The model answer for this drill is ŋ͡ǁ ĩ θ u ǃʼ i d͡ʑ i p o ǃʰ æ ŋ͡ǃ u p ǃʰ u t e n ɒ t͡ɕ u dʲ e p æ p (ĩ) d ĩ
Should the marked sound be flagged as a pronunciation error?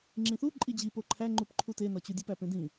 yes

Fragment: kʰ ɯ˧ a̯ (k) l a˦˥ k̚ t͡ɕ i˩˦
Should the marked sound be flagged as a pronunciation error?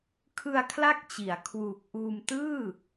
yes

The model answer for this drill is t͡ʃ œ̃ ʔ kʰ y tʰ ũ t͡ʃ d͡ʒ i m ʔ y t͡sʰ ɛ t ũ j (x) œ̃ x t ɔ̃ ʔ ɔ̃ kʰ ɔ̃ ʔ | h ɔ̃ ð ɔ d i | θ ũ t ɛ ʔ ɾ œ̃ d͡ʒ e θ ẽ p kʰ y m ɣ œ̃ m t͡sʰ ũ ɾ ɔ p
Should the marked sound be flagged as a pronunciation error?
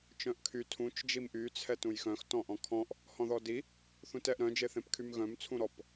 no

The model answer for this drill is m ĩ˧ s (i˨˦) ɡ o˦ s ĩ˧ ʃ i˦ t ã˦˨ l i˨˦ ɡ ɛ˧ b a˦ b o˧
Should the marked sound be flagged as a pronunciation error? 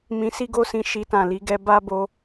yes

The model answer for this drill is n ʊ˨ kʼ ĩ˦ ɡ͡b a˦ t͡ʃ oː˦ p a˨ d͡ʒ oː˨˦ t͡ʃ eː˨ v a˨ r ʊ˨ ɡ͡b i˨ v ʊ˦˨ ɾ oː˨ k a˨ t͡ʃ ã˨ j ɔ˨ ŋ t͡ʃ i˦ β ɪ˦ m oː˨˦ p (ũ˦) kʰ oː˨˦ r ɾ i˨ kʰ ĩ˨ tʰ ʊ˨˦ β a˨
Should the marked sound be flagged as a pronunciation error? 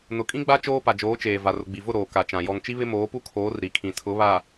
yes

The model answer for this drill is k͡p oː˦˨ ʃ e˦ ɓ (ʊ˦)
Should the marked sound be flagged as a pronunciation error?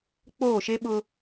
no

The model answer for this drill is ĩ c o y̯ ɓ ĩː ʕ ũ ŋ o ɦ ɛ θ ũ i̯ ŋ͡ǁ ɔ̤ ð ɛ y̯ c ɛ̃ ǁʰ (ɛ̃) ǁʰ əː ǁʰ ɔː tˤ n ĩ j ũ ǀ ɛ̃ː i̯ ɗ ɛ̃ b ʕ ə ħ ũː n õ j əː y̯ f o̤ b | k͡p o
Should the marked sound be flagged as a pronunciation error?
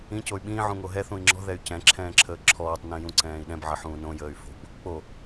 yes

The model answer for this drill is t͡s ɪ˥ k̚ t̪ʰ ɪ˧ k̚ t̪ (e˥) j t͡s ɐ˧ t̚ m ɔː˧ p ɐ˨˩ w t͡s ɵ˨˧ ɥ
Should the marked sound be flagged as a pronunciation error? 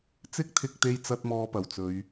yes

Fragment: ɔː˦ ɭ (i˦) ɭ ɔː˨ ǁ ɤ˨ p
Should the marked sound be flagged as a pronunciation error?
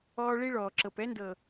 no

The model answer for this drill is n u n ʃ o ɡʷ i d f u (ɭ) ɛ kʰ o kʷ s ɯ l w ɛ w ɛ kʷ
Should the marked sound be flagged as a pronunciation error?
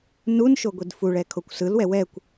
no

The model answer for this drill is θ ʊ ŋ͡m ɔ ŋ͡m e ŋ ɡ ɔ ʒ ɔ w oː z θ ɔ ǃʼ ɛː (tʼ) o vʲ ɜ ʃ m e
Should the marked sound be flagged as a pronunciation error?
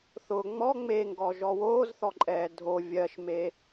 yes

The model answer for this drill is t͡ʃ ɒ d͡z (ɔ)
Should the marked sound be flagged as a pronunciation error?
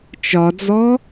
no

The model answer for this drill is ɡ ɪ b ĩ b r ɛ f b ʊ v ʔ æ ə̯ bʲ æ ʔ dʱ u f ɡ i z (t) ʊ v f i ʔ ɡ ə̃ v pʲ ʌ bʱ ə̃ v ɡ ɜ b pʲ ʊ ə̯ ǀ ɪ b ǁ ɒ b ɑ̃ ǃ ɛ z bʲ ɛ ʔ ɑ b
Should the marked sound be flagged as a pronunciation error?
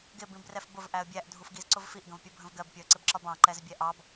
yes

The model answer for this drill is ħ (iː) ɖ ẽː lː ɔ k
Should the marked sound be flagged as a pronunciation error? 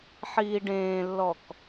no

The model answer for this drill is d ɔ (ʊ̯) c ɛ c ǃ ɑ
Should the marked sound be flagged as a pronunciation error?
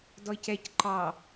yes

